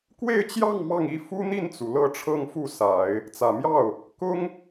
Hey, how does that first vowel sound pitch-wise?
falling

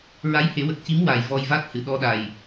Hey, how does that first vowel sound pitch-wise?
rising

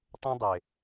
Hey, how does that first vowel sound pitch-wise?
high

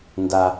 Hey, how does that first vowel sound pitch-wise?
high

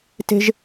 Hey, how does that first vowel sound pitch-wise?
high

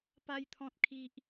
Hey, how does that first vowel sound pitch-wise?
high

